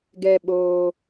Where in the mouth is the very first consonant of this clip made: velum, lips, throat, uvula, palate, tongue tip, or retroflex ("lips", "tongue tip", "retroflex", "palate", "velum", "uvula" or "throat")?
velum